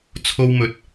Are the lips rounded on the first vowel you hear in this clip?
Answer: yes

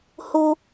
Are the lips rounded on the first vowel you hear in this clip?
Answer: yes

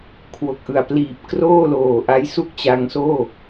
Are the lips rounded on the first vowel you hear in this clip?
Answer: yes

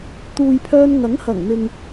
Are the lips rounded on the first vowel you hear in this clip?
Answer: yes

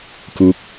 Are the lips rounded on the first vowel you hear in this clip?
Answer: yes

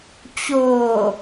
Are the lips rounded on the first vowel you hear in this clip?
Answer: yes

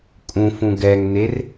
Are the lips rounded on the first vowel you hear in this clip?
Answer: yes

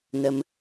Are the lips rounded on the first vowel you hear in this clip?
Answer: no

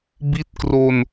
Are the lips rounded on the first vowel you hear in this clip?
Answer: no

